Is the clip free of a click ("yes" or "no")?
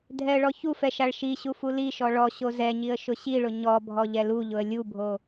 yes